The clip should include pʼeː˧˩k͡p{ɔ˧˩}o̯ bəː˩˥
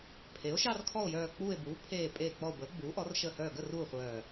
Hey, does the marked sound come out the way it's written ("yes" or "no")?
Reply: yes